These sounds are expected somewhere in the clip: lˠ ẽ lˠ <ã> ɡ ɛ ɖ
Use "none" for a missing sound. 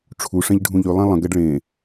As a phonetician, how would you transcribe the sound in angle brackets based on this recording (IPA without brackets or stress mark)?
ə̃